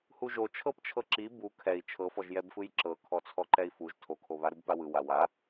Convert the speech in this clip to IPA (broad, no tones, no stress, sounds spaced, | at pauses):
h u ʒ o t͡ʃʰ ɤ p t͡ʃʰ ɤ ǁ i b u kʰ ɛ i̯ t͡ʃʰ ɤ f ɔ ʒ j ɛ b f ɯ j ǁ ɤ kʰ ɔ t͡sʰ ɔ ǃ ɛ i̯ f u ʒ tʰ o kʰ o β a ɾ u b p a w ɯ w a w a